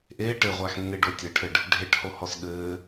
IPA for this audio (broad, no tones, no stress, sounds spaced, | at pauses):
ʔ eː ʈ ɘ ʁʷ a x nː e ɖ o tʲ ɘ ʈʰ ɘ ɖ | ɖʱ e ʈ h o h ɔ s ɠ ɘː